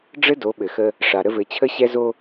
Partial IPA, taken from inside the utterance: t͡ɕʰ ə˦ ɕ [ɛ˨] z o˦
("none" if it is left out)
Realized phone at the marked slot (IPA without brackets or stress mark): ɛ˦